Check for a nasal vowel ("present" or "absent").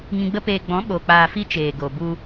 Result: present